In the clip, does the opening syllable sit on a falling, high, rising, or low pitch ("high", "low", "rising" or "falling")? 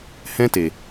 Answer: high